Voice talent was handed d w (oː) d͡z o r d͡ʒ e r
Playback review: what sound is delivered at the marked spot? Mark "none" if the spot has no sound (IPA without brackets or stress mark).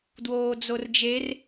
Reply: oː